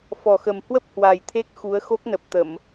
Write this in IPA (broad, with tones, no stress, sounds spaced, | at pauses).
f ɔ˨˩ x ə˨˩ m h w ə˦˥ p̚ h w a˨˩ j t̪ʰ e˦˥ k̚ x u˨˦ ə̯ x o˦˥ k̚ n ə˨˩ p̚ t̪ ə˧˩˨ m